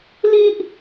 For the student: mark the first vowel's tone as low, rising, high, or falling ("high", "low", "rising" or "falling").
high